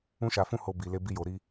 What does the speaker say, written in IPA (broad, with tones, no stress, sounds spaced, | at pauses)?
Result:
ũ˦ ʃ a˧ f ũ˦ h o˧ b i˧ l e˦ b i˦ j o˧ ɾ i˦